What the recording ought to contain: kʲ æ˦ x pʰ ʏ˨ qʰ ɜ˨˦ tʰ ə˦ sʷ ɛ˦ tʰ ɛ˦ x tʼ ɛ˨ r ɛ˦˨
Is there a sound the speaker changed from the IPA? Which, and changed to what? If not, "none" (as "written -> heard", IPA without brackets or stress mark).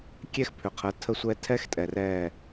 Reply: æ˦ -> ɛ˦